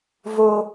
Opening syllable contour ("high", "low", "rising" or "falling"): high